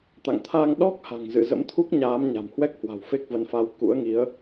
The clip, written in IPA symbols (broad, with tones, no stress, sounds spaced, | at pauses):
t̪ a̰˧˨ ŋ t̪ʰ a˧ ŋ ɗ ɔ˦˥ k̚ h a̤˨˩ ŋ z ɨ̰˧˨ z ə̰˧˥ m t̪ʰ u˦˥ k̚ ɲ aː˨˦ m ɲ a̤˨˩ m h w ɛ˦˥ k̚ h w a̤˨˩ w f e˦˥ k̚ v ə˨˦ n f a˨˦ w k ṵ˧˥ ə̯ ŋ i˨˦ ə̯